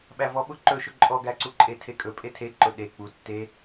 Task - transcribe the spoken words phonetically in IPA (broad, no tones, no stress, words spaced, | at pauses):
ɓævɔɓʊ ǃɵʃʊ ǃʼɔɡæǀuǃʼe tʰekʼɵ pʼetʰeǃʊ ɗe k͡pu tːe